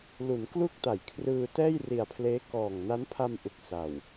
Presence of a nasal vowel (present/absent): absent